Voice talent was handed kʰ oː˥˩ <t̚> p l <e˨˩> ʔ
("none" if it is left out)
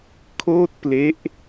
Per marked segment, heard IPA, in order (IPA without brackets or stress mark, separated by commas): t̚, e˦˥